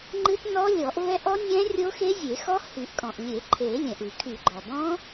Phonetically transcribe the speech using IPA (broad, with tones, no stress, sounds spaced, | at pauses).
ŋ͡ǃ ɨ˦˥ t n ɔ˦˥ lʲ ɔ˨˩˦ ʔ v ɛ˦˥ ʔ ɔ˦˥ nʲ ɛ̃˦˥ rʲ o˦˥ x e˦˥ zʲ e˨˩˦ x ɔ˦˥ h y˨˩˦ ʔ kʼ ɔ̃˩ ʔ lʲ e˨˩˦ ǃʰ e˨˩˦ lʲ ɛ̃˩ ʔ ɨ˨˩˦ kʰ y˨˩˦ ɡ͡ǃ ɔ˩ b ɔ̃˦˥